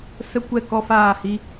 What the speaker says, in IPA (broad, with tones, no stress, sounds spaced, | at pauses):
s ə˦ kʷ ɛ˦˨ k ɔ˦ f aː˦˨ h i˧